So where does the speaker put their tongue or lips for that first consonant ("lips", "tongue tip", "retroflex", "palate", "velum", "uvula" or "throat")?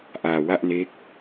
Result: throat